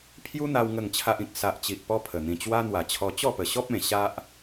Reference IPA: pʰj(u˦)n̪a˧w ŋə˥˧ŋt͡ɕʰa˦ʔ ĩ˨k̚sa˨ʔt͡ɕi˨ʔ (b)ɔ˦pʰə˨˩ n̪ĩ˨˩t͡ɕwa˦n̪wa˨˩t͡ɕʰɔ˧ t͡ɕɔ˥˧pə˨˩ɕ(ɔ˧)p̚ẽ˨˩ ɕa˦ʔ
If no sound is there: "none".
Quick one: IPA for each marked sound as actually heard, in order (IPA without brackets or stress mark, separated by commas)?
u˦, p, ɔ˦